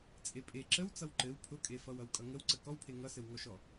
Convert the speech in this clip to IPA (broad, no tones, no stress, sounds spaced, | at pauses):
t͡sʼ e pʼ e ǁ ə w t͡s ʌ w ǃ ɘ w pʰ ʊ kʼ e f ʌ w ʌ w kʼ ʌ ŋ ə w ǀ ə k ɔ w pʰ e ŋ ʌ s ɘ w ŋ ɔ ʃ ɔ